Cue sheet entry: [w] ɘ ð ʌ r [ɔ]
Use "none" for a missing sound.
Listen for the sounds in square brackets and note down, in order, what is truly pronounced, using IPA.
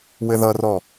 w, ɔ

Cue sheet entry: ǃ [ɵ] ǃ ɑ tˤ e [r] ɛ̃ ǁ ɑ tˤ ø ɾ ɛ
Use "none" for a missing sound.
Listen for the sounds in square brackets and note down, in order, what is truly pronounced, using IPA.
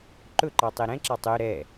ɵ, ɾ

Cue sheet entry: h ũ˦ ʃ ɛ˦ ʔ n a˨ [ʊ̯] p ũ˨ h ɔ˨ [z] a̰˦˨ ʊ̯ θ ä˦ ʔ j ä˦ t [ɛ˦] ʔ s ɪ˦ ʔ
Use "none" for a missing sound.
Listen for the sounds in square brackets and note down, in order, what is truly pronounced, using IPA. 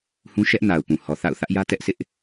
ʊ̯, θ, ɛ˦

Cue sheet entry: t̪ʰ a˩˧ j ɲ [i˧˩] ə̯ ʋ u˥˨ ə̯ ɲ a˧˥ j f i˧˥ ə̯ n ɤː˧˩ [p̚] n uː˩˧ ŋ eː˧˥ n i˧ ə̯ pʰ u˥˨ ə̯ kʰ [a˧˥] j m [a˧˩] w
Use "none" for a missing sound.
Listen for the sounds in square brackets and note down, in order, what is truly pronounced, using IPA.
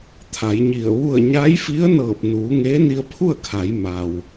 i˧˩, p̚, a˩˧, a˩

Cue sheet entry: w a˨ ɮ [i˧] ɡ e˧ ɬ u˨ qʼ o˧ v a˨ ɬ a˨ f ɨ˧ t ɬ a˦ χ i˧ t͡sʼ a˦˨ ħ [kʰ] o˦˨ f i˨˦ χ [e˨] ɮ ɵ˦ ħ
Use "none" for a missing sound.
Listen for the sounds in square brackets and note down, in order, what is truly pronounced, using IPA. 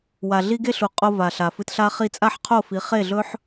i˧, qʰ, e˦˨

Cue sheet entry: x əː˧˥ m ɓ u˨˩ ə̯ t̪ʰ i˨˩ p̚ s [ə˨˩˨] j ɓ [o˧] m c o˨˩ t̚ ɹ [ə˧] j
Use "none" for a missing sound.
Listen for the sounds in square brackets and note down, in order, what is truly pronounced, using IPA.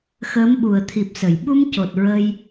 ə˨˩˨, u˧, ə˧

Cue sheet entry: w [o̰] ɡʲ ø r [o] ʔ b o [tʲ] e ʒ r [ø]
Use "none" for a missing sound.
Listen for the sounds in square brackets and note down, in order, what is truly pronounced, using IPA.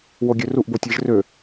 o, u, tʲ, ø

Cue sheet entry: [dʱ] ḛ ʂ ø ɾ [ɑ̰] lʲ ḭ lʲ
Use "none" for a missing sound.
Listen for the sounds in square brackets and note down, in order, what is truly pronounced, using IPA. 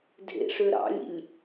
dʱ, ɑ̰

